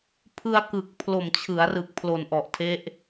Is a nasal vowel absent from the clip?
yes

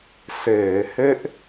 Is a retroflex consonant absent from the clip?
yes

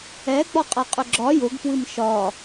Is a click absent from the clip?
no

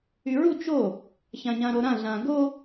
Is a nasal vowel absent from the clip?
no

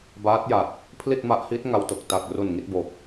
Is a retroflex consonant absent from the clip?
yes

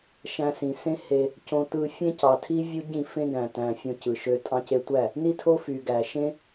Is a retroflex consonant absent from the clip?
yes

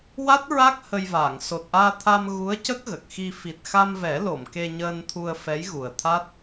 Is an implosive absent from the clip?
yes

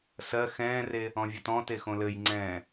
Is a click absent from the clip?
no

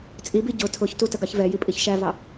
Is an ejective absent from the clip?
no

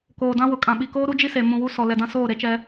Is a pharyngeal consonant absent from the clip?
yes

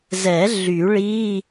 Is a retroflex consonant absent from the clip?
no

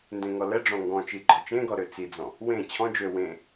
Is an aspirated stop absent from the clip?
no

